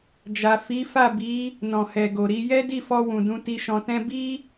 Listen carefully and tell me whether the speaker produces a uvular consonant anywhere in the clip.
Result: no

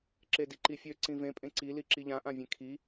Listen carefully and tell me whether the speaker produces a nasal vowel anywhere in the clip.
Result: yes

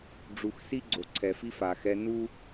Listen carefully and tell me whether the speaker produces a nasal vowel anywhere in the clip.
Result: no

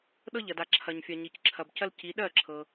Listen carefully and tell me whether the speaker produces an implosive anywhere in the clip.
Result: yes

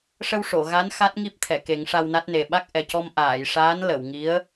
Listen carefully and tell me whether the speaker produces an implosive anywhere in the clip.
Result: yes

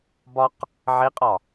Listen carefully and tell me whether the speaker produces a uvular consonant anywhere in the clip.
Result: yes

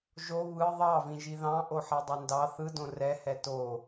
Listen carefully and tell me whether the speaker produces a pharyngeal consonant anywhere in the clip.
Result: yes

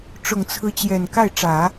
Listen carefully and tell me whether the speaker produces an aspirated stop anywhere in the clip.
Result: yes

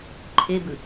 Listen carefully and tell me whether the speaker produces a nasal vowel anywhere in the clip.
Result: no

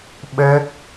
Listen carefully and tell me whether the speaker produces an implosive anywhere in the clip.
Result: yes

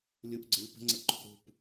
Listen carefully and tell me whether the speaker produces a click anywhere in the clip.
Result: yes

